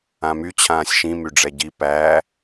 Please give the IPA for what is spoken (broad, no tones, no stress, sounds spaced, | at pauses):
ã m y t͡ɕʰ ãː sʲ ʃ ĩ m y ɖ͡ʐ ɛ ɟ i p æ